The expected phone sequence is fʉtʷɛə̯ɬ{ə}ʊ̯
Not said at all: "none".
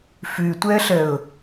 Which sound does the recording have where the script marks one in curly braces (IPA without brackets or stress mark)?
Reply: ə